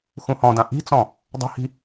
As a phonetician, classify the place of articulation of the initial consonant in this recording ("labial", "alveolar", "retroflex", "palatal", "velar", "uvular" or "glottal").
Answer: velar